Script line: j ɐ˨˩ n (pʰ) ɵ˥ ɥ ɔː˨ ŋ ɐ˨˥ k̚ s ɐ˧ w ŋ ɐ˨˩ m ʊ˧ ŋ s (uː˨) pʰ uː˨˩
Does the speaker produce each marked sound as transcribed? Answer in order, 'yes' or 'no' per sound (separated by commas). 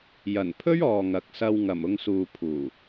yes, yes